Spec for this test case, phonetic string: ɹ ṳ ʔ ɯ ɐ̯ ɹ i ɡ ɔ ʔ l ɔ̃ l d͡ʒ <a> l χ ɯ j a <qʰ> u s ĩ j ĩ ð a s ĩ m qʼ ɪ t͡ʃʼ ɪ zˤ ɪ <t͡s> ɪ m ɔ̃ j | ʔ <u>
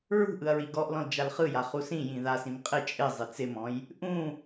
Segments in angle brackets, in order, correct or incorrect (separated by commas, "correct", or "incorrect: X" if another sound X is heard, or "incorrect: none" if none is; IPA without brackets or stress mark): correct, incorrect: χ, correct, incorrect: ũ